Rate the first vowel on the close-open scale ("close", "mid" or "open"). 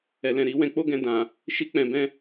mid